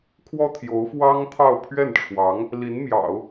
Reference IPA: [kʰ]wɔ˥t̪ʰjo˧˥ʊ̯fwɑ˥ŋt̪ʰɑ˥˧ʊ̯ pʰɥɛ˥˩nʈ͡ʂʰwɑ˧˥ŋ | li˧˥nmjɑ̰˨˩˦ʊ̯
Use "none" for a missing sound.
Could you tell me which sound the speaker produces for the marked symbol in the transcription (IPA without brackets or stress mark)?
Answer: kʰ